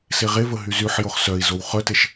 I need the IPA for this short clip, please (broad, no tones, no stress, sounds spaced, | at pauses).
s e ʁ e v ə ɦ y z y ħ j o χ s œ i̯ z o w χ œ t e ʃ